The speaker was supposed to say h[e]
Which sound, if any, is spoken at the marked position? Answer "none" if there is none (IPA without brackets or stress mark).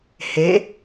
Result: e